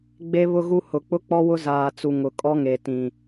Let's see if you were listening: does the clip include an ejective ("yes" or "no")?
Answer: yes